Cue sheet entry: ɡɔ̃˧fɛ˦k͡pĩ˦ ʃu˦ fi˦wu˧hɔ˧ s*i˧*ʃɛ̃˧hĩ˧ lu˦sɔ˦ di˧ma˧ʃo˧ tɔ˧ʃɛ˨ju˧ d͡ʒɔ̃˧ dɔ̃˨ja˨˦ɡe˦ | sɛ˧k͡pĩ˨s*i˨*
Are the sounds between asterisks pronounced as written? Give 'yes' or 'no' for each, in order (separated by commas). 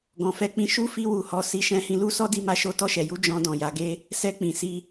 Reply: yes, no